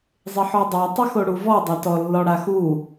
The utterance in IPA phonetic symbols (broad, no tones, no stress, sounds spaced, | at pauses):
zˤ ɪ ħ ɔ dˤ a tˤ ɪ x o ɽ u v ɔ dˤ a t ɔ lː ɔ ɽ a x u